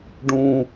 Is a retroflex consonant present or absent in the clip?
present